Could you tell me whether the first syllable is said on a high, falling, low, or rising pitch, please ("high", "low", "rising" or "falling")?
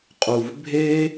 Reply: low